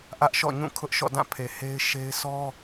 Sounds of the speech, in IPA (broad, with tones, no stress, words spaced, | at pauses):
ʔä˦ʔʃɔ̰˦˨ɲũ˦˨ kʰʊ˦ʔʃɔ̰˦˨dã˦˨pʰe˨ he˦ɪ̯ʃe˦ɪ̯ sɔ˦